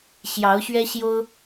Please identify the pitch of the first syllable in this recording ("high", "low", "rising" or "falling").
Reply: rising